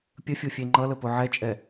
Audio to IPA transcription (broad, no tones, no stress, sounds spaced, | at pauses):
pʲ ə fʲ o fʲ e ŋ͡ǃ ʌ l ə p o ʕ ɛ t͡ʃʼ ɛ